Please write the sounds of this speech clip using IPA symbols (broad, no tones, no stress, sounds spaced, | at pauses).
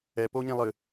ɛ p o ɲ ẽ lˠ ɨ